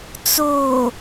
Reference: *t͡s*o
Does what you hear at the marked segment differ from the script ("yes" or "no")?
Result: no